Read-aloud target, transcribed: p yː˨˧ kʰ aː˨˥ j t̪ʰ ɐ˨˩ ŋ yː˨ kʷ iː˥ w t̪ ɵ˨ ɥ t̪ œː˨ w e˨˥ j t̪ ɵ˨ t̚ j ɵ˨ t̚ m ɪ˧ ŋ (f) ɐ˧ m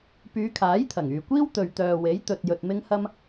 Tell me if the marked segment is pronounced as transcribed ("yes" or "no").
no